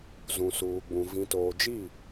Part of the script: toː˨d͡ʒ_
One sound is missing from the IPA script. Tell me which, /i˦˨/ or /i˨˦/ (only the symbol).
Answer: i˦˨